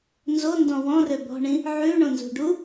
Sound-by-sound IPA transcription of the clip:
n z o n d ɔ̃ w ɔ̃ r ø b ɔ̤ ɳ ĩ | ʕ ʉ ɳ õ n z ṳ ɖ u

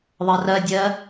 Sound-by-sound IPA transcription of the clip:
ðˤ ɜ r ɜ dʲ ɜ

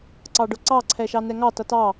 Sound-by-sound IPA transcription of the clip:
ǀ ɑ ɖ ʊ ǀ ɑ ǀʰ ɛ ʃ ɑ n ɛ ŋ ɑ t ʌ t ɑ

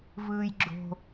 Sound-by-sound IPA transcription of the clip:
v ɯː j ɡ͡ǁ o̤

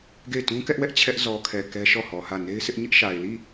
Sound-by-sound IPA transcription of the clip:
ɡ e˦˨ ɪ̯ t ũ˦ k ɛ˦ ʔ w ɛ˦ ʔ t͡ɕʰ ɛ˦ ʔ z ɔ˨ kʰ ɛ˨ k ɛ˦ ʃ ɔ˦˨ h ɔ˨ h ä˦˨ n e˦ ɪ̯ sʰ ɪ˦ ʔ ɲ ɪ˦ ʔ ʃ a˨ ɪ̯ l i˦˨

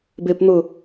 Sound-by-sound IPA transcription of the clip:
b e p n̪ ʊ

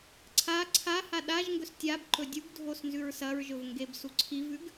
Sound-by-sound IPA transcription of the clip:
ǀʰ a ǀʰ a h a ɗ a ʒ ŋ ɡ ɵ s tʲ a b ǃ ɵ dʲ u ɡ dʱ o s n z ʉ ɹ s ɐ ɹ ʒ ɵ v ŋ ɡ e b s u ǀʰ i v ʉ ɡ

